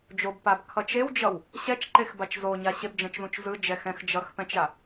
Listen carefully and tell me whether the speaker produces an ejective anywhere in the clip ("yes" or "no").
no